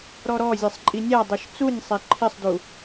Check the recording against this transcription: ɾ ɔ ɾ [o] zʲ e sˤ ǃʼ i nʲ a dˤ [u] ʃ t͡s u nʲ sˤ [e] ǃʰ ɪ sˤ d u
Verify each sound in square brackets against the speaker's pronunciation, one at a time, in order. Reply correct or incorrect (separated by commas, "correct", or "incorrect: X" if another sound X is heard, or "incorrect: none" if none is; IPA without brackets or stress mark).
incorrect: ɔ, correct, correct